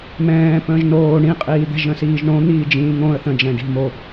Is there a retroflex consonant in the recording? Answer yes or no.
yes